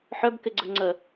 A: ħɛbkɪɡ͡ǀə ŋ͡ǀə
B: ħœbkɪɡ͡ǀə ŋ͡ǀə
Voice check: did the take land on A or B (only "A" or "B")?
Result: B